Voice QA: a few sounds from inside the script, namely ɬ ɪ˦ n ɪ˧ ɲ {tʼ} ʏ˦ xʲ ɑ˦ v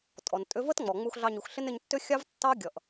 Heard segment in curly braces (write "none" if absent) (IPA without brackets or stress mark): tː